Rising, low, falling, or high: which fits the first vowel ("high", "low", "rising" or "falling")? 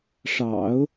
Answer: low